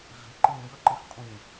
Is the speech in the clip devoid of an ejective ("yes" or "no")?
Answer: no